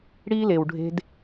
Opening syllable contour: high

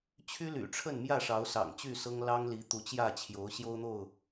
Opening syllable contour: high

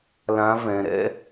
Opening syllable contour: rising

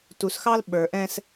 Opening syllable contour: low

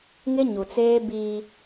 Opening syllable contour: high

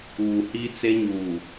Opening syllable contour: low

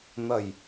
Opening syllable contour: low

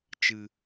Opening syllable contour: low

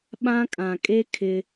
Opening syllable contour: high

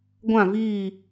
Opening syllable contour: falling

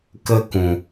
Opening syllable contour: high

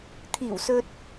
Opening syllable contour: low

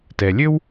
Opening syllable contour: low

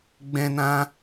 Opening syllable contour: high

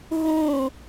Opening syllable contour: falling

